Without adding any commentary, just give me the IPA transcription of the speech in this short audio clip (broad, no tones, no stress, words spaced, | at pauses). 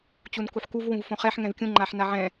t͡ɕunkuħkuv wũvfõχɛħ ŋɛ̃vkʲũ ŋ͡ǃaħnaʕɛ̃